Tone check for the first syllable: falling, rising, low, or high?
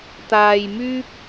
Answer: low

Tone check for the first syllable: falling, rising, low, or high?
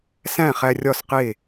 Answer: falling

